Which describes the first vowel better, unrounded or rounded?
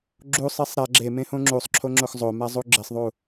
rounded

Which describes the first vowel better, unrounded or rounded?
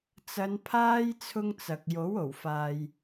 unrounded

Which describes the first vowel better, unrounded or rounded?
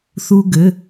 rounded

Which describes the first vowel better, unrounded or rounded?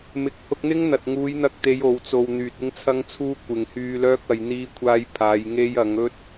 unrounded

